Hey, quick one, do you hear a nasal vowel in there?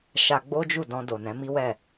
yes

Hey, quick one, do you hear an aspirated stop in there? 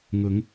no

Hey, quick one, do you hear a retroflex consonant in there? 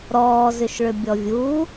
yes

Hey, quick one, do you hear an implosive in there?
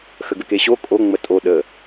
yes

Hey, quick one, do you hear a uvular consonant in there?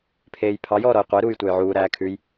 yes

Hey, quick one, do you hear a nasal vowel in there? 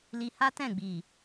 yes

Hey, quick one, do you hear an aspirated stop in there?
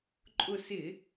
no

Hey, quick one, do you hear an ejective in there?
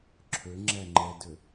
no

